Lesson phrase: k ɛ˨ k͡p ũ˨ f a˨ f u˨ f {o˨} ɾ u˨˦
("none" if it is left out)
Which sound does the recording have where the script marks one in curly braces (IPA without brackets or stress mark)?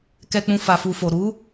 o˨